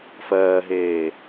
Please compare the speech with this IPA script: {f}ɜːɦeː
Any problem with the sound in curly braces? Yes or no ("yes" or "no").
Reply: no